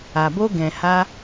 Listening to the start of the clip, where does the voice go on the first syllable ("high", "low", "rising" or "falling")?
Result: low